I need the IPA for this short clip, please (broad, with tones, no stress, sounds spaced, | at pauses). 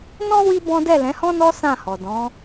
n ɔ̃˦ w i˦ b ɔ̃˦ d ɛ˦˨ l ɛ̃˨˦ h ɔ̃˦ n ɔ˦ s ã˦˨ h ɔ˨ d ɔ̃˨˦